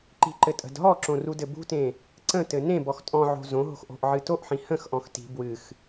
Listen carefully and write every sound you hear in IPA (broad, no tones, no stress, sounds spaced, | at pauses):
ǃ i̤ ǃ ɘ tʼ ə̤ d ɦ ɔ ǁ õ r u d ɘ b ṳ t ẽ | ǀ ə̃ t ɘ n ẽ b ɔ x tʼ ɔ̃ ʕ o̤ z õ ɦ o̤ x ʔ o̤ ʔ ʕ ɨ t o ʔ ħ ĩ h ə̃ x ʔ ɔ̃ x t i̤ b w ɨ x